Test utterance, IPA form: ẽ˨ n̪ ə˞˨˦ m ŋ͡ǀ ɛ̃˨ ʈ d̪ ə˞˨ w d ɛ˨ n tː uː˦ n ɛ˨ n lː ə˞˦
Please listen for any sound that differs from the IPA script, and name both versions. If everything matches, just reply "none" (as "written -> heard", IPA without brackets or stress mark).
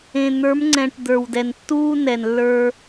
none